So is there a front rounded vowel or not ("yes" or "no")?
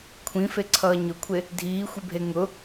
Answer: no